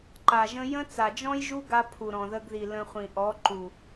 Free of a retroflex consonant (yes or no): yes